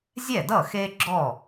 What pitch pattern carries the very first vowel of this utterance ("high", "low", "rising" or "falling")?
falling